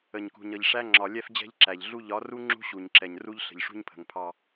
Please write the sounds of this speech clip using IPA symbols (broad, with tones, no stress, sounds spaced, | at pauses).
ə˨ ɲ k ṳ˨ ɲ ʌ˨ ʎ ʂ æ˦ ŋ͡ǁ ɒ˨ lʲ ɛ˦ f d͡ʑ ɛ̤˦ ʎ ǁ æ˨ ʎ ɮ u˦ ʎ ɒ˨˦ r u˦ ŋ͡ǁ ṳ˦ ɕ u˨ ɲ ǁ ɛ˨ ɲ r u˦ ʎ ɬ ə̤˨ ʎ ʂ ṳ˦ ɲ pʰ ə̤˨ ŋ pʰ ɑ˦